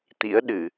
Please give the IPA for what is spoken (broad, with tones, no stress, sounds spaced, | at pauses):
t̪ ḭ˧˥ ə̯ ɗ ɨ˧˩˨